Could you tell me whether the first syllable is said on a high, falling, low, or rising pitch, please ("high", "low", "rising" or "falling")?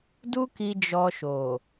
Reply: high